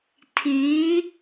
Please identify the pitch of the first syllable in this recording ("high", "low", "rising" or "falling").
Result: rising